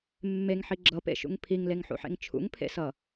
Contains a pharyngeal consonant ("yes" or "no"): yes